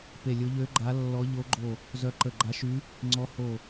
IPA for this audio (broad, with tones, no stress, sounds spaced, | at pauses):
p e˧˩ lʲ o˧˥ ʎ ø˧˥ ɡ͡ǃ a˧˥ lː ɔ˧˥ ʎ o˧˥ ɡ͡ǃ o˧˩ | z œ˧˥ ǃ ə˧˩ ɡ͡ǃ a˧˥ ʃ y˧˥ | ŋ͡ǀ ɔ˧˥ h o˧˩